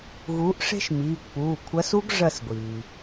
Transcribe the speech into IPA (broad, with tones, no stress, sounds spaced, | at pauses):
ɣ uː˨˥ ʔ ʂ e̤˦˥ ʃ m iː˩˧˩ kʷ p uː˩˧˩ kʷʰ ɜ˨˥ s u˦˥ ɡ ʐ ɜ˦˨ s ɡʷ iː˩